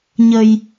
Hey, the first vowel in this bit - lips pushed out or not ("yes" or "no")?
no